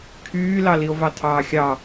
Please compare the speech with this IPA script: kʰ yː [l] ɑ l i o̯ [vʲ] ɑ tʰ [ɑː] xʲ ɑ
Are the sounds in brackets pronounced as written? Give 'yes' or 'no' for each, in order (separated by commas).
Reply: yes, no, yes